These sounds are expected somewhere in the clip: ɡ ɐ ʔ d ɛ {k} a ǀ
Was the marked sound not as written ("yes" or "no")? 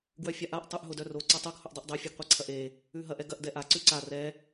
yes